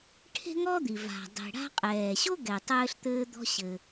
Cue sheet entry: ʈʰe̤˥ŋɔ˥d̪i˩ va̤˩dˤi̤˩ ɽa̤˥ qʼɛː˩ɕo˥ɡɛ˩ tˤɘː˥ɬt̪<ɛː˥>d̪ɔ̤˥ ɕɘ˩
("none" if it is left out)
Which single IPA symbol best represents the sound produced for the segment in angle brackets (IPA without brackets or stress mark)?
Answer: ɘː˥